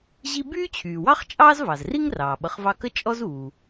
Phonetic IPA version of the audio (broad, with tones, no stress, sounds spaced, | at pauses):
ʑ i˦ b yː˥ t͡ɕʰ yː˩ w ɑ˥ χ t͡ʃʼ ɑː˥ z v ɑ˩ z r i˥ ŋ r ɑː˩ ɓ ʌ˨ χ v ɑ˦ k ə˦ t͡ʃʼ ɔ˦ z uː˩